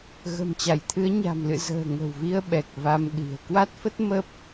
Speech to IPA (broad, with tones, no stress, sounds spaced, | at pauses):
ɣ ə̤˨˩ m t͡ɕ a˧˩ j t̪ʰ ɨ˨˦ ə̯ ɲ a̤˨˩ m l ɨ̰˧˨ z ə̤ː˨˩ ŋ ə̤˨˩ w v i˧ ə̯ ɓ ɛ˨˩ k̚ v a˧ m ɗ i̤˨˩ ə̯ k w a˦˥ t̚ f ə˦˥ t̚ m ə˦˥ p̚